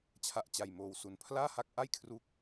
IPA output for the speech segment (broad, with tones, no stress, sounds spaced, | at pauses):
t͡ɕʰ a˦˥ ʔ t͡ɕ a˧ j m oː˧ w s u˧ n pʰ l aː˥˩ h a˦˥ k̚ ʔ a˥˩ j kʰ r u˥˩ k̚